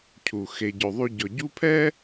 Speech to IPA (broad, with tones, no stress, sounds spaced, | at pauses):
cʰ u˩ x e˩ ɟ ɵ˩ ðˤ y˨ ɟ ɔ˩ ɟ u˦ pʰ ɛ˥